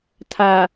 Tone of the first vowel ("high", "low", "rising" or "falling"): low